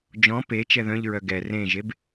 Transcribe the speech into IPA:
d͡ʒ ɔ̃ p e t͡ʃ ɛ ð œ̃ ʎ ɹ œ ɡ ɛ r ẽ ʒ e b

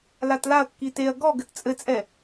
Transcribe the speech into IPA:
l a t l a ɐ̯ kː i t e ɐ̯ ɡ ɔ ɡ ɘ t t͡sʼ ɘ t͡sʼ ɛ

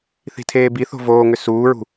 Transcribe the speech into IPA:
θ i̤ tʰ eː b i θ o̤ v oː ŋ ʏ s uː ɹ ṳ

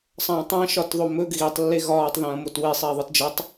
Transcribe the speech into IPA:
sˤ ɐ̃ː tˤ ɐ̃ ʃ ɒ t ðˤ o m ɵ ɡ ɣ i tˤ lː e ɣ ɒː tˤ ð ɐ̃ː m o t w e sˤ eː ðˤ ɯ t d͡ʒ ɐ tˤ

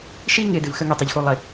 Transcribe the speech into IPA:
ʃ i˦ ŋ ɪ˨ d ɪ˨ v x ə˦ ŋ i˨ tˤ ə˨ ʎ x u˨ lˠ ɪ˨

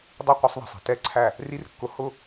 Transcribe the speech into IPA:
dˤ ɪ˦˨ qʷ i˧ sˤ ðˤ ɛ̤˨ sˤ i̤˨ t ɛ˦˨ ǀʰ æ˦˨ | r i˦ r kː ʊ˧ h ʊ˦

